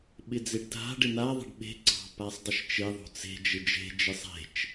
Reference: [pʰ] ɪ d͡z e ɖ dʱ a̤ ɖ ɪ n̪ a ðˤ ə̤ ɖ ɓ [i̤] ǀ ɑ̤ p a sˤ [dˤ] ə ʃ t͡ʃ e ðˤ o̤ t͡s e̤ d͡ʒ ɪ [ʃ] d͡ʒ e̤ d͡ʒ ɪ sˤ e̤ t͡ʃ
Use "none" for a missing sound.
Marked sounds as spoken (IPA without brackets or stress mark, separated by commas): ɓ, e̤, dˤ, none